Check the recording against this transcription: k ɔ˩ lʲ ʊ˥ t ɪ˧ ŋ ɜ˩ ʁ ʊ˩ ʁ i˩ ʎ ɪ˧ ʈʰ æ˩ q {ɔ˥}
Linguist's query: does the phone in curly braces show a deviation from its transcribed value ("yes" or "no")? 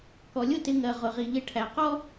no